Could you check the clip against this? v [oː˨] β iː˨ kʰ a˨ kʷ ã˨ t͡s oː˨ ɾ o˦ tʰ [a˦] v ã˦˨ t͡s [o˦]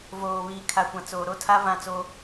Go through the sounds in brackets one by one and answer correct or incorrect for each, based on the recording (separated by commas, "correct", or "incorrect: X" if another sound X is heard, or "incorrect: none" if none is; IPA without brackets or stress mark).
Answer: correct, correct, correct